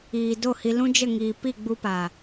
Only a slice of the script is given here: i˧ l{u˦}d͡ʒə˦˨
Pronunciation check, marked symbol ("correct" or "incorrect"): incorrect